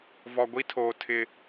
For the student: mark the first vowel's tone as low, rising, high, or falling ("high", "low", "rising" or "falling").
low